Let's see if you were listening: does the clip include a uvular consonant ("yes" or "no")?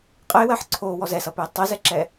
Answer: yes